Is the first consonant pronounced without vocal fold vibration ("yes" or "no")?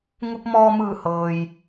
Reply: no